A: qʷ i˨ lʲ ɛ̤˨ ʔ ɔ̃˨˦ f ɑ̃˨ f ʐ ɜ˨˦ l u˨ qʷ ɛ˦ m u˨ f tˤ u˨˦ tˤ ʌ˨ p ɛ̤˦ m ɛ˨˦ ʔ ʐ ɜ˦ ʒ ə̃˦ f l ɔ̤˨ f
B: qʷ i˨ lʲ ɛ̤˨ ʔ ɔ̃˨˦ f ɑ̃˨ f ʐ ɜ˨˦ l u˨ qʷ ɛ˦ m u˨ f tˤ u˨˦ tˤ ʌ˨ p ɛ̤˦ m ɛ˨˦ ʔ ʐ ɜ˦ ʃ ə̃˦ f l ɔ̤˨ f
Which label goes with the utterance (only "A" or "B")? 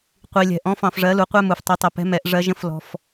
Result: A